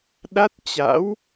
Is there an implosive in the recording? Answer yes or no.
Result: yes